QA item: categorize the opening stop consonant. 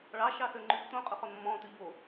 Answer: click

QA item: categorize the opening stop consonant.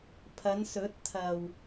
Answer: aspirated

